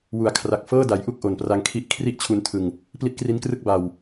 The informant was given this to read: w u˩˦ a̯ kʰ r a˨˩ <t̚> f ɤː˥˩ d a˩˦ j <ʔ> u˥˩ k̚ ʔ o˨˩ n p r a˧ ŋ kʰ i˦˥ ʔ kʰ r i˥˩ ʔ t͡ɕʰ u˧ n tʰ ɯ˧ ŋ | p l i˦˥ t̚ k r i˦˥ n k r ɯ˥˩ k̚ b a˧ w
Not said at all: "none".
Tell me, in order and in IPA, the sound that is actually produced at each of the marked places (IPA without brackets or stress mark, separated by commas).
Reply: k̚, ʔ